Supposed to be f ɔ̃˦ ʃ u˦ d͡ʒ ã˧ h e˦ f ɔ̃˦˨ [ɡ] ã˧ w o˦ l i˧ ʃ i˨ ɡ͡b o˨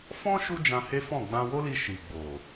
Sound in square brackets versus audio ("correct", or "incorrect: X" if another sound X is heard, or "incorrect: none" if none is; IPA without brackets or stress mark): incorrect: ɡ͡b